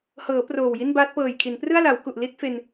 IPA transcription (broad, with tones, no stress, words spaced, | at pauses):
hɤː˩˦ proː˨˩wji˥˩nbaː˦˥t̚ pɤː˨˩jkʰi˩˦n prɯ˥˩a̯la˩˦wku˨˩ʔli˥˩t̚ fe˧n